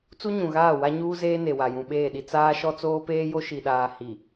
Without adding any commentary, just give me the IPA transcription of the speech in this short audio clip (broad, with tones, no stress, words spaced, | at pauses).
t͡su˦ɲũ˨ɣaː˦˨ wa˦ɲuː˦zeː˦ ne˨wa˨jũ˨ ɓeː˦˨ɗi˦ t͡saː˦ʃɔ˦ t͡soː˦peː˦jo˦ ʃi˨ɗaː˨ hi˨